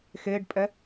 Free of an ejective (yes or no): no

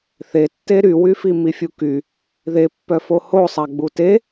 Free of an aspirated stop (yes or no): yes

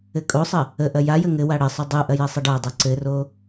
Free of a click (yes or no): no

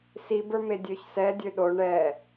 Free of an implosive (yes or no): no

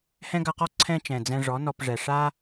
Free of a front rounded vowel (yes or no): yes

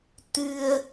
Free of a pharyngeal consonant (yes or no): yes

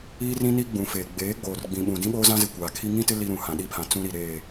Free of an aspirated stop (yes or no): no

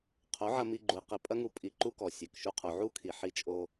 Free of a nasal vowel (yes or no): yes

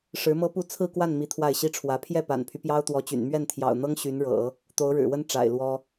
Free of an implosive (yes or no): yes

